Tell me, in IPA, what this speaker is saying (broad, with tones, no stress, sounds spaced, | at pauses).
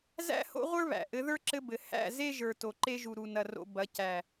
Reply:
z æ̰˦ h o̰˦ ʁʷ ə˞˦ β æ̰˨ ʔ ɘ˨˦ ð ə˞˦ ǁ ɘ˧ b ɘ˨ h æ̰˦˨ z e˦ ʒ ə˞˨ t o˨ ǃ e˧ ʒ u˨ ɾ u˨ n ɐ˨ r o̰˨ b ɐ˨˦ c æ˨